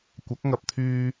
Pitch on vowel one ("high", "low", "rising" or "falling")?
rising